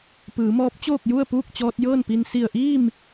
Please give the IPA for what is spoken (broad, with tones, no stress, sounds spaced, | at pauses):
p ɯː˩˧ m ɔː˧˥ p̚ t͡ɕ oː˥˨ k̚ j u˥˨ ə̯ p uː˥˨ k̚ t͡ɕ ɔː˧ t̚ j ɤː˥˨ n p i˧ n s i˧˩ ə̯ ʔ iː˥˨ m